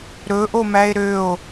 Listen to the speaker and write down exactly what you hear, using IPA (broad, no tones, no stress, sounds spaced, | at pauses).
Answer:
ɾ ɵ ʔ o m æ e̯ ɾ ø o̯